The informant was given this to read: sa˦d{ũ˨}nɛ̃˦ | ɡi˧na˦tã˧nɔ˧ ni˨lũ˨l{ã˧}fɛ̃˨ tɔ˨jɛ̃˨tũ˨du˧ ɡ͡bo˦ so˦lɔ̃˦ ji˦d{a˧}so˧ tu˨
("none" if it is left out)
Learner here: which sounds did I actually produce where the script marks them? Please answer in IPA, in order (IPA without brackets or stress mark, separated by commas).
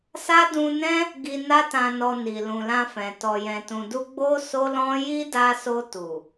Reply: ũ˧, ã˧, a˧